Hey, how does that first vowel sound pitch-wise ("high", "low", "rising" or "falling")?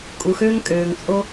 low